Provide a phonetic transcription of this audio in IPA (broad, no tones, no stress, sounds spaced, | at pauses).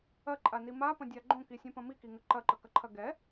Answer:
ɐ ǃʼ a n i m a p ɐ̃ dʲ a ɡ͡ǃ õ k i sʲ õ p ɐ̃ m i k i ŋ ə ǃ ɐ ǃ ə k ɐ ǃʰ ɐ ɡ ɛ